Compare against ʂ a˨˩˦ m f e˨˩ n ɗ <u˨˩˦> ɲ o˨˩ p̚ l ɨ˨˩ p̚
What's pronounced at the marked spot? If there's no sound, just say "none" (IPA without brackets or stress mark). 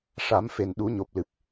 u˨˩˦